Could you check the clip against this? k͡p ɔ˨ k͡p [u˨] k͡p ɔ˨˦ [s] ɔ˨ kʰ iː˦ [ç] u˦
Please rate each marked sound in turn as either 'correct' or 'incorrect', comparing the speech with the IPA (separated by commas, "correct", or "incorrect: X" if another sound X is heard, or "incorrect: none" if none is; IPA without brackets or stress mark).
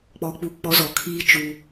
correct, incorrect: z, incorrect: t͡ʃ